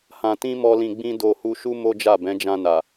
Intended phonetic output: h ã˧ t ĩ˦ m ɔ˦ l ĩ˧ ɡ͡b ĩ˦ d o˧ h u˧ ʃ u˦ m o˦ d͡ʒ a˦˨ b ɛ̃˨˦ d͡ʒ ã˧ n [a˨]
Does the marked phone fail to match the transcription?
no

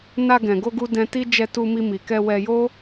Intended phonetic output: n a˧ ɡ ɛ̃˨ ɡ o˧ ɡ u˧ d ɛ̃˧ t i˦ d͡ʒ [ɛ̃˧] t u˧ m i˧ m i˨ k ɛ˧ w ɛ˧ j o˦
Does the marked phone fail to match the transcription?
yes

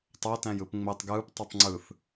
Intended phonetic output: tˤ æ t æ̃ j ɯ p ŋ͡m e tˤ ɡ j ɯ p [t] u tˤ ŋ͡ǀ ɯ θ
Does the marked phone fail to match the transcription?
yes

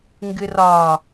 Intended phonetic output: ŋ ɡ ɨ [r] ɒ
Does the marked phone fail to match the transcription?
no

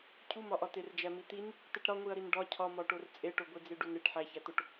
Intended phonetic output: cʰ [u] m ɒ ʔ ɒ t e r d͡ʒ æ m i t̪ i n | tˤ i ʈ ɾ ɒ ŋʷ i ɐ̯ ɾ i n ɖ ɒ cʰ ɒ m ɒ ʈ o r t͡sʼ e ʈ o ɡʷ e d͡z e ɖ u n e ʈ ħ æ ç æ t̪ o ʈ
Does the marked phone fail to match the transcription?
no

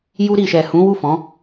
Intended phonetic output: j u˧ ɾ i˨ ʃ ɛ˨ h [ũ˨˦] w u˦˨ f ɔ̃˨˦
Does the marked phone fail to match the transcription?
no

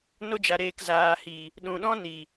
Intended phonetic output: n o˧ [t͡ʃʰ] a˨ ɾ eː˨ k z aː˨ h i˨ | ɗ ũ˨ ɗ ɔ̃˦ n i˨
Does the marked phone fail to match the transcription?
yes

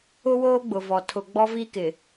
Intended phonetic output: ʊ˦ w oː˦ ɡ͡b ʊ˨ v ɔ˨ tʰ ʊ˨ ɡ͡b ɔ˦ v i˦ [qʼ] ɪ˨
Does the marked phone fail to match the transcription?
yes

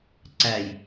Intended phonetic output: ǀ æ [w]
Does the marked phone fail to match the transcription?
yes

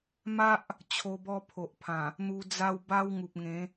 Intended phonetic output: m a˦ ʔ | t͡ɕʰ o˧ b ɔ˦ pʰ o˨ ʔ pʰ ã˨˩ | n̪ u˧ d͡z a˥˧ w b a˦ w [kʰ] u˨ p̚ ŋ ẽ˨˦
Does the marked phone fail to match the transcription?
yes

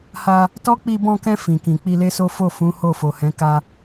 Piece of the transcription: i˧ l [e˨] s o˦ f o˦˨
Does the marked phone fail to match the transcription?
yes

